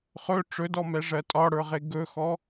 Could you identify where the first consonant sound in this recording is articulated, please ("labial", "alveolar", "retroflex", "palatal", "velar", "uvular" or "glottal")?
uvular